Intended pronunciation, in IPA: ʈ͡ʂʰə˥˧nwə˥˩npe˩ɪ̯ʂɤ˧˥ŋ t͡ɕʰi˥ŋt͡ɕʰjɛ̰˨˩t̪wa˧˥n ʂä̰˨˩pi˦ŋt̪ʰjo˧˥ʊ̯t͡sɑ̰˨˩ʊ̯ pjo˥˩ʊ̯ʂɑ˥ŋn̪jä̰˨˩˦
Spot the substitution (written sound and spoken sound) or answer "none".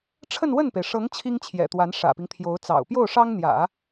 none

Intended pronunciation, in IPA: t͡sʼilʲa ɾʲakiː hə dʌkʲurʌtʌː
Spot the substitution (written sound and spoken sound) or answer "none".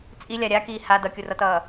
ə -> a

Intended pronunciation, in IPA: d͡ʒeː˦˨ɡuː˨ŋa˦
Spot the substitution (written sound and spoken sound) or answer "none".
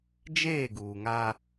none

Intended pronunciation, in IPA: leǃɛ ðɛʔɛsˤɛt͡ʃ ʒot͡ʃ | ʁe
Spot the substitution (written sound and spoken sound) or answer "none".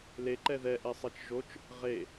none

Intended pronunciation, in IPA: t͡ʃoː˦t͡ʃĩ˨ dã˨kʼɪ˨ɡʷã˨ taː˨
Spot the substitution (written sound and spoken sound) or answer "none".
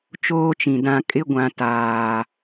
ɪ˨ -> ɪ˦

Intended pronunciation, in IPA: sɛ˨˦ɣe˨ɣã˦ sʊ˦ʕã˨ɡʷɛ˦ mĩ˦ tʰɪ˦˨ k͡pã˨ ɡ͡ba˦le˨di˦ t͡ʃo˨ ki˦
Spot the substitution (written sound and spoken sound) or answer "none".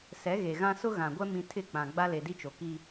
ʕ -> ɣ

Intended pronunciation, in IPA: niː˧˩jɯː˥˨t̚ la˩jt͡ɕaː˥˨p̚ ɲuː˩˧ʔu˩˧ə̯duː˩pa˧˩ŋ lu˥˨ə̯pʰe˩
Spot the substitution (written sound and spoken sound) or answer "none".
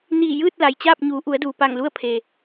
none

